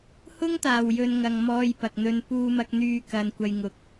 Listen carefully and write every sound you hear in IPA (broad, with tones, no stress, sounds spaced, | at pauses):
h ʊ˥ ŋ t̪ aː˨˩ w j ɵ˨ n ŋ ɐ˨ ŋ m ɔː˧ j p ɐ˨ k̚ n̪ ɵ˧ n p uː˧ m ɐ˧ k̚ n̪ yː˧ k ɐ˧ n kʷ ɐ˧ j ŋ ʊ˨˥ k̚